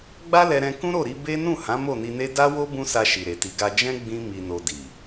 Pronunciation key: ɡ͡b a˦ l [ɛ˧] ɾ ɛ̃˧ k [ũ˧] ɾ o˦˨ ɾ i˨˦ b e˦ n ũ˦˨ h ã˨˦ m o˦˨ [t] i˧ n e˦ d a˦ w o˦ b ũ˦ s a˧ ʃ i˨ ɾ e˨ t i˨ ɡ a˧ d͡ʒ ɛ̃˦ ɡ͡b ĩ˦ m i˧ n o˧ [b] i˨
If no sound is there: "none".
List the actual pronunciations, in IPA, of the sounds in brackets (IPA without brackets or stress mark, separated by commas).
ɛ˧, ũ˦, n, d